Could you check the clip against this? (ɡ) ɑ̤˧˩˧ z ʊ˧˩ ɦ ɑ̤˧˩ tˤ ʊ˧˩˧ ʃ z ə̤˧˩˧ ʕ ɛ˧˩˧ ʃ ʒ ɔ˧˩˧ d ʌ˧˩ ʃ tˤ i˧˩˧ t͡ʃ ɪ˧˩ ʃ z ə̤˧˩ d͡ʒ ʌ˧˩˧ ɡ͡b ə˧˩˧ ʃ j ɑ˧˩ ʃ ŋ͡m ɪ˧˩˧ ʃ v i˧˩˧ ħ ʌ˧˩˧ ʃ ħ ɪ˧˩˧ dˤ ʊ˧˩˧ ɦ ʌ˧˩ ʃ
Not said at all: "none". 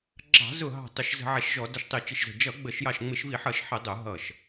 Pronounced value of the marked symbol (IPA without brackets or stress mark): ɡ͡ǁ